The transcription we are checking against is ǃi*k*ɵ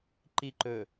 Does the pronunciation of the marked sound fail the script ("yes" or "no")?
yes